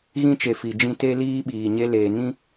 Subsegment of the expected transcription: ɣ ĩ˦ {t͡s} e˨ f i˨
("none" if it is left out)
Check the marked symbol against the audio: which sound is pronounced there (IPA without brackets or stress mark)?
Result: t͡ʃ